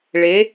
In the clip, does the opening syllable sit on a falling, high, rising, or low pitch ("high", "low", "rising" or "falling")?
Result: rising